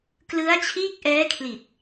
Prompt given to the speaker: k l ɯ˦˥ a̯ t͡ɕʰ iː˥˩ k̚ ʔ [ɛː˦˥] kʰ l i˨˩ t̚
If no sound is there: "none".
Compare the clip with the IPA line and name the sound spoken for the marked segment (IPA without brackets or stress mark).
ɛː˦˥